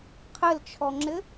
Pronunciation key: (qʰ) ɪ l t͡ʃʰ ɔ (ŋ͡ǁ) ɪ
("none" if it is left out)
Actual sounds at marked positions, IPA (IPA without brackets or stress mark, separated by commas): qʰ, ŋ͡ǁ